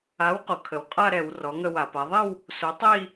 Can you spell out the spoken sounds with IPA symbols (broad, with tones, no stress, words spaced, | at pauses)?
a˩˥wqo˩ kʰə˩wqʼa˥˧ɾɛ˧˩˧w rɔ˩˥ŋə˥˧wa˧˩˧pa˩˥ ðˤi˥˧w | so˩˥tˤi˥˧